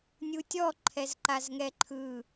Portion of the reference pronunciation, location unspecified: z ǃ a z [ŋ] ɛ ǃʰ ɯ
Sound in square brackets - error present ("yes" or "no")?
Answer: no